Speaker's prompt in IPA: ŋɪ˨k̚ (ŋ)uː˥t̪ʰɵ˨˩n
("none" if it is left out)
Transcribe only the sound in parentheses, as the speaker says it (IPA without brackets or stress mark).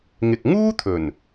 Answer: ŋ